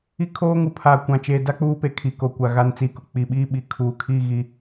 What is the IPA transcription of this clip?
i˦kʰoː˦ŋu˨ pʰaː˨kʷã˨t͡ʃeː˨da˦ k͡puː˦pe˨ kʰi˨ko˨kʷa˨ ɣa˦nt͡si˦kʊ˨ k͡pi˨ɓiː˦ɓi˨ kʰuː˨kʰi˦˨ɣi˨

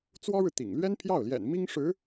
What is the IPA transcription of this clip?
t͡swɔ˥ɻɻ̩˨t̪ḭ˨˩ŋ lɥɛ˥npʰjɑ˥˩ʊ̯ljɛ̰˨˩n mi˥ŋʂɻ̩˧˥

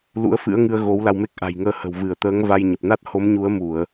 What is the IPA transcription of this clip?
lṵ˧˥ə̯fɨ̰˧˥ə̯ŋɨ˧ə̯ ɣo˨˦wla˧wme˦˥k̚ ʔa̤˨˩jŋəː˧hə̤˨˩w vɨ˧˩ə̯t̪əː˨˦ŋva˧jɲə˨˩p̚ na˦˥t̚ho˨˦mɲu˨˦ə̯mu˧˩˨ə̯

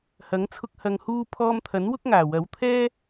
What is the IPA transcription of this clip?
hɐ˨˥ŋt͡sʰʊ˧k̚ hɐ˨ŋhuː˧ pʰɔː˧mt̪ʰɐ˨˥n wʊ˥k̚ŋaː˨˩wɐ˨˥wt̪ʰɛː˥

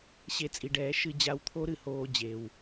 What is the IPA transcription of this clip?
ɕe˧t͡sʼi˨ɖɛː˨˦ ʃɨ˧ d͡ʑa˧wt̪ʰo˦ ɾɨ˨hoː˧ d͡ʑe˨w

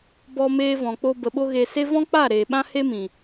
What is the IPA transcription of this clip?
bɔ˧meː˧vɔ̃˨k͡po˧ bə˧ɓo˦ ɣe˧se˦ vɔ̃˦k͡pa˦˨ ɾeː˨ɓã˦he˦mĩ˨

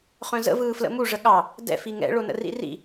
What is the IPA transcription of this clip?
χœ̃zə̰ vɯːflə̰mu ʐəɠɑ | dɛ̰f iŋɛ̰ ɭonə̰rḭrḭ

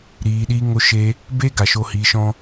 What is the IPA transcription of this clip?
ɾiː˨ɗiː˧ ŋo˧ʃe˧ | be˦ ɡa˨ʃo˧hiː˨˦ʃɔ̃˦

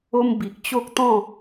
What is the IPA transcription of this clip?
o˧m bi˨k̚t͡ɕo˦k̚ t̪ɔ̃˥˧

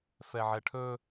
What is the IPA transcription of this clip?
fɛʕɛʈʰɵ

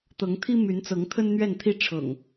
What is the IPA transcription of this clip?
t̪ɤ˨˦ŋt̪ʰi˦ my˨˦nt͡sɤ˨˦ŋ t̪ʰə˦nn̪ɥɛ˥˨nt̪ʰi˦ ʈ͡ʂʰɤ̰˨˩ŋ

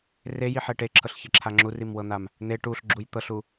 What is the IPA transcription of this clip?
rejiħɛ ʈeǁʰɤɬçeǁʰa ŋ͡ǁurimwɤn̪am | n̪e ʈuɬɡ͡ǁuj t̪ɤɬu

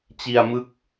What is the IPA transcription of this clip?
t͡ɕi˧a̯mɯ˦˥k̚

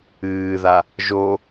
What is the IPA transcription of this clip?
ɨːða | ʒo

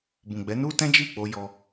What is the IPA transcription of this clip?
bũ˨ɡ͡bɛ˨˦nu˦tɛ̃˦ d͡ʒi˦˨k͡po˧jɔ˧

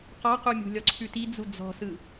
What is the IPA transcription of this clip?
qɔqumʲṳ lʲɔǀʰʉtid͡zu d͡zɔ̤sɯ

